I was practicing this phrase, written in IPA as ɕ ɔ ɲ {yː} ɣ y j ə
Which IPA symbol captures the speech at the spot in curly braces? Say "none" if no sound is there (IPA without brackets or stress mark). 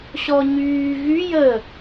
yː